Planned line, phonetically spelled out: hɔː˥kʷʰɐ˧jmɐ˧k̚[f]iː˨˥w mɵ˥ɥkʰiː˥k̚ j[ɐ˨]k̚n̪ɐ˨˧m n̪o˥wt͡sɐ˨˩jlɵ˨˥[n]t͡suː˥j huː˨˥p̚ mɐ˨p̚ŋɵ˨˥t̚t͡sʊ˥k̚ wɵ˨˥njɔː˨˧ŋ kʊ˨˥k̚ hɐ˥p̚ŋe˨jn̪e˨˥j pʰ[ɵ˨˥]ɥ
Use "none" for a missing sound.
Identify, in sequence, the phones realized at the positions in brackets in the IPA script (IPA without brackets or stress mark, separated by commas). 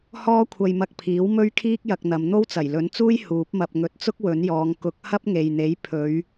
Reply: pʰ, ɐ˧, n, ɵ˨˧